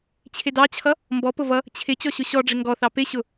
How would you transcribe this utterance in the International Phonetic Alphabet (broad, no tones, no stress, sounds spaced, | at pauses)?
t͡ɕʰ ɪ d ɑ t͡ɕʰ ʌ | m b ɔ p ʊ v ʌ | t͡ɕʰ ɪ t͡ɕ ɔ ɕ ʊ ɕ ɔ ɖ͡ʐ ɪ ŋ ɡ ɔ θ ɑ p ɪ ɕ ʊ